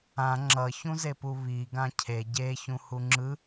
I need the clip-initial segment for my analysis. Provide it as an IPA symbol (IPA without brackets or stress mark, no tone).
ã